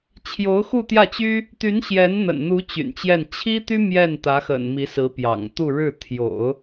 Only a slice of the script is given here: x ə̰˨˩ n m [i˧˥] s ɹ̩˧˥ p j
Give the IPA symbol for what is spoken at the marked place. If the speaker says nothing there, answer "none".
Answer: i˧˥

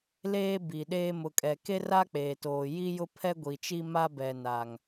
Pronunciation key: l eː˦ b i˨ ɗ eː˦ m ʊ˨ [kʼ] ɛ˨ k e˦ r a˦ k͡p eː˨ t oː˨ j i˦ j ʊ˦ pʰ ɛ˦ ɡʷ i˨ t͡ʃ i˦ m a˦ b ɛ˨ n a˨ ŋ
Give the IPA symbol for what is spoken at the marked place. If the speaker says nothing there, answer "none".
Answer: kʼ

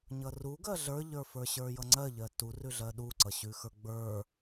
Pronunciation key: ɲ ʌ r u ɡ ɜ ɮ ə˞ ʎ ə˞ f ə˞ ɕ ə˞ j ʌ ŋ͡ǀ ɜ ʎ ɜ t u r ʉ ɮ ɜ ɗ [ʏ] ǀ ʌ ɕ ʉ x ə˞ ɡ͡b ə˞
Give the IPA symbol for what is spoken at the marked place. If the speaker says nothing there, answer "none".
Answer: u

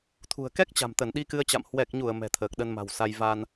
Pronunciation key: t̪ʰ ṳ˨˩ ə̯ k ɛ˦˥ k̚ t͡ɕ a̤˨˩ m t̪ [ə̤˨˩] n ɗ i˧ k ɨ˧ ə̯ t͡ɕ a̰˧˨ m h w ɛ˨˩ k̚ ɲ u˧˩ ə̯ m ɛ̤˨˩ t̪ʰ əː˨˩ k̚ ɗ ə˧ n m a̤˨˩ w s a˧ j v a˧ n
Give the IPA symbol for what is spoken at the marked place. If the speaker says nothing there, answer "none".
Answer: ə˧˩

